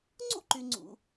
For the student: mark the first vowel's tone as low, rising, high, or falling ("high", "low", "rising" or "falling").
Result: high